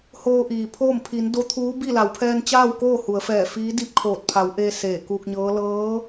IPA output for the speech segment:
h oː˧ ʔ iː˩ pʰ oː˥˨ m pʰ i˩˧ n d o˧˥ t̪ʰ uː˧˥ b i˥˨ l a˩˧ w pʰ ɛː˧ n t͡ɕ aː˥˨ w k oː˥˨ h u˩˧ ə̯ f ɛː˧˩ f iː˧˥ d i˥˨ p̚ kʰ oː˧˩ t̚ pʰ a˩˧ w ʔ e˧ s eː˧˩ k uː˧ k̚ ɲ ɤː˧˥ l ɤː˧˥

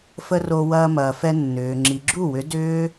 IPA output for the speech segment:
f ə˧ r o˧ w ɐː˧ m ɐː˨ f ɛ˧ nː ʏː˨ ŋ͡ǁ i˨ ɡ͡ǁ u˦˨ w ʏ˨˦ d ʏː˦

